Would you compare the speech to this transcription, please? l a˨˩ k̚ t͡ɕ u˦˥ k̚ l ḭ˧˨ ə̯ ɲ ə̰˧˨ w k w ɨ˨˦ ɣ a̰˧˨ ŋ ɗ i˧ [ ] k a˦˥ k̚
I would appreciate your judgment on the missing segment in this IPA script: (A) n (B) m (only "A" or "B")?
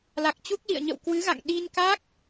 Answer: A